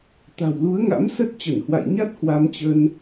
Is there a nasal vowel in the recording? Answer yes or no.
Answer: no